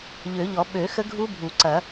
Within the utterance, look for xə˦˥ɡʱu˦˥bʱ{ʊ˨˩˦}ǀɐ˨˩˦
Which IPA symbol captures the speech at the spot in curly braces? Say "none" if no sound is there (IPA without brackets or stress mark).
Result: u˨˩˦